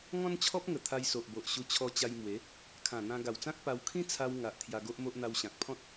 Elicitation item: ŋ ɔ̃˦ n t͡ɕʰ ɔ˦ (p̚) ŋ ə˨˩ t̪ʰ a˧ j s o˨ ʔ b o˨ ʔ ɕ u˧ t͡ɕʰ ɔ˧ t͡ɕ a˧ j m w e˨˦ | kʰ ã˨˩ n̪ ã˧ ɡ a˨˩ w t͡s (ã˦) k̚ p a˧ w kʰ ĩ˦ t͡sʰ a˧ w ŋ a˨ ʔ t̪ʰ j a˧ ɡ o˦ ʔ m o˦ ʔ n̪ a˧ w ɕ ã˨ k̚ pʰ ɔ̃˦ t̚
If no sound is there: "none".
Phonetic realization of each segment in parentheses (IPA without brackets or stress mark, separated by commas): p̚, ã˦